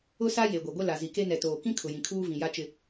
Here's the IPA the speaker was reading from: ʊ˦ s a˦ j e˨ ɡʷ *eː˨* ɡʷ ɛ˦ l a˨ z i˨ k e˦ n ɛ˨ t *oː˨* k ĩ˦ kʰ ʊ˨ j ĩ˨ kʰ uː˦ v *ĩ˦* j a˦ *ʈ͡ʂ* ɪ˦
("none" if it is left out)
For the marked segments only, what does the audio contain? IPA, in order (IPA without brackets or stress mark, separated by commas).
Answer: e˨, oː˨, ĩ˨, t͡ʃ